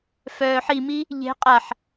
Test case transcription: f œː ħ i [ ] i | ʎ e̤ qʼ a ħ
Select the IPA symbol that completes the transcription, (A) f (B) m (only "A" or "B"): B